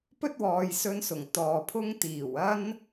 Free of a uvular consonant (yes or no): yes